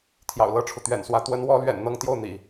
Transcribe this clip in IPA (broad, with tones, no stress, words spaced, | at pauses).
t̪ʰjɑ̰˨˩ʊ̯lɤ˥˩ʈ͡ʂʰu˩ t̪ɥɛ̰˨˩nswä˧˥ t̪wə˧˥nwɔ˧˥lɥɛ̰˨˩n n̪ɤ˥˧ŋt̪jo˥˩ʊ̯n̪ḭ˨˩˦